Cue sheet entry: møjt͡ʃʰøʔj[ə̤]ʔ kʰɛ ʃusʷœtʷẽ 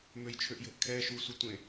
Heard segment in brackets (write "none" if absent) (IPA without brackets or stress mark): ə̤